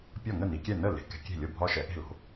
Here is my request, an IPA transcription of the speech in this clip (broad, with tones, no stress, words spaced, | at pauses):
pʲɒ˥˩ŋə˥˩ni˩˧kʲɛ˥˩ nə˥˩le̤˩˧ kɛ̤˩˧kʲe̤˥˩lʲo˥˩bʱɒ˦ ʃɛ˩˧ʔe̤˥˩lo̤˩˧